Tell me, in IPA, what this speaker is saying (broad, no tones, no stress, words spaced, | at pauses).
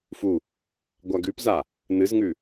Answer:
fu | ɡʷaɡʉpza | nɨzŋʉ